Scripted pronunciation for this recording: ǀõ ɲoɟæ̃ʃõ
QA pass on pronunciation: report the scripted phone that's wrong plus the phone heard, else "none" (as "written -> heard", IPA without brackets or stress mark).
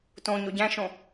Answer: ǀ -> t